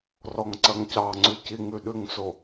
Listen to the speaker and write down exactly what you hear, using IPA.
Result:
r ɔ ŋ ǀ ɐ ŋ c ɑ ŋ͡ǀ ʉ c i ŋ ʉ ɗ ʉ ŋ s o

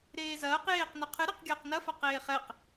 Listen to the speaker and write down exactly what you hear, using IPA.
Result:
ɾ eː z ɐː q j eː q n ɘ qʰ ɨ ɾ e q ɡʲ ɐː q n ɐ f a q eː χ ɛ q

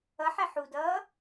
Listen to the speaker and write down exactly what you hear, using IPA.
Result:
ʌ ħ ɛ ħ u d ʌː

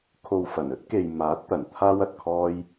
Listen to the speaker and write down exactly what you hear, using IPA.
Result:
kʰ o˨ w f ɐ˨˩ n ɵ˥ t̚ k e˨ j m aː˨˥ t̚ t̪ ɐ˨˩ n t̪ʰ aː˥ w ɐ˨ t̚ kʰ ɔː˥ j

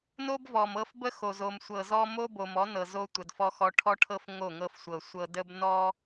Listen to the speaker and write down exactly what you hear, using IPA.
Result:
n o˦ b v ɔ˨ m ɤ˦ f b ə˦ x o˨ z o˨ m sʷ ɤ˨ z ɔ˦ m o˦ b o˨ m ɔ˨˦ n ɤ˨ z o˦ tʷ ə˨ d f ɔ˦ x ɔ˦ ʈʰ ɔ˦ ʈʰ ɤ˦ f ŋ o˦˨ ŋ ɤ˦ f sʷ ɤ˨ sʷ ɤ˨ d ə˦ b n ɔ˦

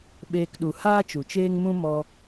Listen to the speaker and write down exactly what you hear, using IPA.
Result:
ɓ eː˧ k ɗ u˨ h aː˦ t͡ʃ u˨ t͡ʃ eː˦ ŋ m ũ˦ m ɔ˧

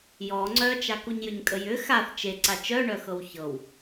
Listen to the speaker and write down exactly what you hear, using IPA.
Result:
j ɔ ŋ͡ǀ œ t͡ʃ a k u ɲ j ʏ ɲ kʼ ə j ʏ x a θ t͡ʃ e ǀ a t͡ʃ œ ɳ œ x ɤ w ç ɤ w

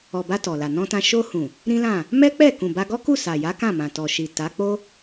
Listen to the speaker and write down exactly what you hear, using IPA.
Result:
ɔ˨ b a˧ t ɔ˨ l a˨ n ɔ̃˧ t ã˧ ʃ o˧ h ũ˨ | ɾ ĩ˦ l ã˦˨ | m ɛ˦ k͡p ɛ˦˨ k ũ˨ b a˧ ɡ ɔ˦ k u˦˨ s a˨ j a˨˦ k ã˦˨ m ã˨ t ɔ˨ ʃ i˨ t a˨˦ k͡p o˦

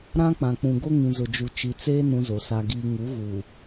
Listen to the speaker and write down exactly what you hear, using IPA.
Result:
ɾ ã˦ k͡p ã˨ k͡p ũ˨ ɡ o˦ ŋ ĩ˨ z ʊ˨ d͡ʒ u˨ t͡ʃ i˨ t͡s eː˦ n ũ˦ z o˨ s a˦ ɡ iː˦ ŋ u˨˦ ɣ u˨

